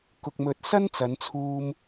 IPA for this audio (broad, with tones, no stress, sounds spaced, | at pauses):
k ʊ˨ k̚ m ɵ˨˥ t̚ s ɐ˥ n t͡s ɐ˨˧ n t͡sʰ uː˧ m